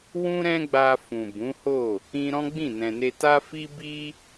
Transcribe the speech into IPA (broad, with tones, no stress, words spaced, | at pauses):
wũ˦ɾɛ̃˦ɡ͡ba˧ fũ˨bũ˨˦ho˦˨ | ĩ˧ ɾɔ̃˦ɡ͡bĩ˦˨ nɛ̃˨ne˧ ta˦fi˦ bi˦